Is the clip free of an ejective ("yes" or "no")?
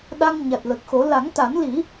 yes